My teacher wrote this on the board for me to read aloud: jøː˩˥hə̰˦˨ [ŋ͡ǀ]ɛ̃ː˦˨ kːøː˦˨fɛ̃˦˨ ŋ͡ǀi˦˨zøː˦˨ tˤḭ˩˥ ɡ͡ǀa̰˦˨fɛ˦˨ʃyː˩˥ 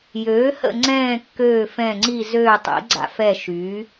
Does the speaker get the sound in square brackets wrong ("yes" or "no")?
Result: no